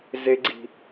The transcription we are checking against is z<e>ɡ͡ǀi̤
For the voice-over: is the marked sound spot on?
yes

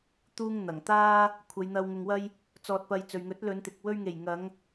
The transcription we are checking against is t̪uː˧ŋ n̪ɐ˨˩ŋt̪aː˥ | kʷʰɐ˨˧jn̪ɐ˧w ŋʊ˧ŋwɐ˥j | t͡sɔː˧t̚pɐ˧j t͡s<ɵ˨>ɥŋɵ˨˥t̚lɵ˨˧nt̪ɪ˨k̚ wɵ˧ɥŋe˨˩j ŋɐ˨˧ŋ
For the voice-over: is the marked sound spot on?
yes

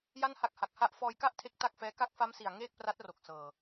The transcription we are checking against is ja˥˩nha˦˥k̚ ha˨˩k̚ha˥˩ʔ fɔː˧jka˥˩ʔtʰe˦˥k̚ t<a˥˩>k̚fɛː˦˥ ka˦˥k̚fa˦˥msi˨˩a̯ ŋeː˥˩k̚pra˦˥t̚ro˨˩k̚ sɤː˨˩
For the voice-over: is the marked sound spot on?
yes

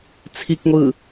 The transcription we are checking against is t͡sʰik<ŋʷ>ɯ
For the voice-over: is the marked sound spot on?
yes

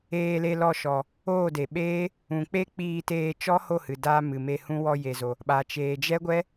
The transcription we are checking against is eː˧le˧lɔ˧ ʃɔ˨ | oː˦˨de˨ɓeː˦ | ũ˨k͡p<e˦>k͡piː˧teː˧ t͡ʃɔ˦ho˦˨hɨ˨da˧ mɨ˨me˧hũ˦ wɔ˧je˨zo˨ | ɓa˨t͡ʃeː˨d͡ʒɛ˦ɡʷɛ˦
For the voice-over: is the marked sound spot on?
yes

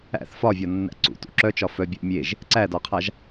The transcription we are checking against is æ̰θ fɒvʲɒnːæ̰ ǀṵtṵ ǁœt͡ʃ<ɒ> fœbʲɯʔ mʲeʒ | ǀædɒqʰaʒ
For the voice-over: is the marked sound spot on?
yes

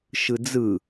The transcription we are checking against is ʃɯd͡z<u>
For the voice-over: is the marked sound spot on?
no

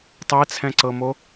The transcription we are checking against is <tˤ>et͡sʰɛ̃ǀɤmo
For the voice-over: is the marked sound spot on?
yes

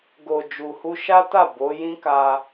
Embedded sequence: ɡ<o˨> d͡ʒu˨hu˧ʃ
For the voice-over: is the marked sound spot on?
yes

